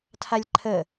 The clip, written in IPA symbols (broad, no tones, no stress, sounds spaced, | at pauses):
tʰ a lʲ ǃʰ ə